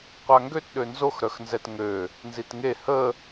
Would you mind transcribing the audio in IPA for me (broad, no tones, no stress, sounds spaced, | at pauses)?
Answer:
qʷ a ŋ ɡ ø t ɗ ø n z o x ɾ œ x n z ɛ t ŋ ø | n z i t ŋ e h ə